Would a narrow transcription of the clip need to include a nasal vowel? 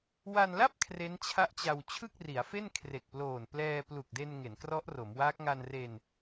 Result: no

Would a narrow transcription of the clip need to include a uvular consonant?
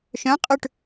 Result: yes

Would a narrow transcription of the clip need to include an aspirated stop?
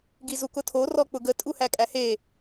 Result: yes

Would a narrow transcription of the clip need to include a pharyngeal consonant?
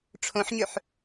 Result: yes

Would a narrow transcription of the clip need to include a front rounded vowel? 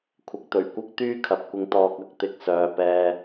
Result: yes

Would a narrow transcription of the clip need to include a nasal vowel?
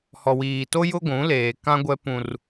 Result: yes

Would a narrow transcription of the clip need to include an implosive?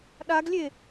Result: yes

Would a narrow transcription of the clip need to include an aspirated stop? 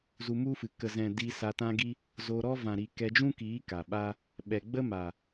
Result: no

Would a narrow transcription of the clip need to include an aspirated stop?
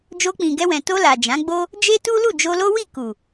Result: no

